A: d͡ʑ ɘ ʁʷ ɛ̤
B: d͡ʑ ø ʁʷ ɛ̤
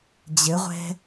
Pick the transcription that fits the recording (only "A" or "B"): A